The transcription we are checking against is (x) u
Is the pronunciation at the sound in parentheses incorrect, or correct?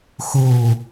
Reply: correct